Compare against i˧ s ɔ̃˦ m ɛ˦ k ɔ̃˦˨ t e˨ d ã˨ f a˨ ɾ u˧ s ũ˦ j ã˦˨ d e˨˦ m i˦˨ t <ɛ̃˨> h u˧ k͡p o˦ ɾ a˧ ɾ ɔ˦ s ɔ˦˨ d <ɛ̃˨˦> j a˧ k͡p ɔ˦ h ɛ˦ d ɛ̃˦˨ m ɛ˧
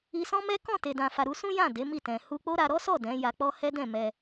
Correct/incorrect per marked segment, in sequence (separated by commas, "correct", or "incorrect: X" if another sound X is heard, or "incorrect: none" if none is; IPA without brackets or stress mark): correct, correct